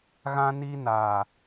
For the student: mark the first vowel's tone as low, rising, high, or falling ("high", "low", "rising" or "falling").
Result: high